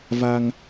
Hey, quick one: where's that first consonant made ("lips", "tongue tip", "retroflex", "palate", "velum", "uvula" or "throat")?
lips